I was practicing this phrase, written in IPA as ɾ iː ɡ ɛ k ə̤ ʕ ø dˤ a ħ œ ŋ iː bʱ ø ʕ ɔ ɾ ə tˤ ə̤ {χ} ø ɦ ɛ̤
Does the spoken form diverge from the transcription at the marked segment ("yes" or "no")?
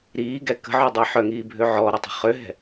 no